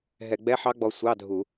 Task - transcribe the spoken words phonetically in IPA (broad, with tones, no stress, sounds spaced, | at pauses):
ɦ ɛ˧˩˧ ɡ͡b ɛ˧˥˧ ħ ɑ˦˥ ɡ͡b ɔ˧ sʷ ɑ˧˥˧ dʱ u˧˩˧